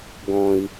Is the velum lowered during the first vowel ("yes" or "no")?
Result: yes